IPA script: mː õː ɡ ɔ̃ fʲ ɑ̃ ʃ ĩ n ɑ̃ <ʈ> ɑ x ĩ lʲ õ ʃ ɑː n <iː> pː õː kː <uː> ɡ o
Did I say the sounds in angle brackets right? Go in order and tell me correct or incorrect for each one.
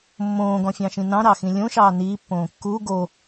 incorrect: ɾ, correct, correct

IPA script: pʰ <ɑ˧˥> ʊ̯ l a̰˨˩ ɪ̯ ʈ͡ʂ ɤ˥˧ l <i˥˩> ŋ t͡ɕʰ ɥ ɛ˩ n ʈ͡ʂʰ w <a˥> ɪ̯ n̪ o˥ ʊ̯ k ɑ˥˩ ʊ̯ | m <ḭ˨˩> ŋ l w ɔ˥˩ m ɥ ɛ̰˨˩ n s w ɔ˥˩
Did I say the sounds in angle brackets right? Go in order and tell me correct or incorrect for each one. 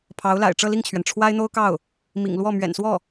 correct, correct, correct, correct

